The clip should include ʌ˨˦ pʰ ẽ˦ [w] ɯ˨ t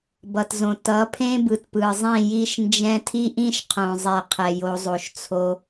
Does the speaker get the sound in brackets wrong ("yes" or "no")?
yes